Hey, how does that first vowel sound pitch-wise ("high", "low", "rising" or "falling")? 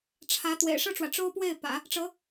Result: rising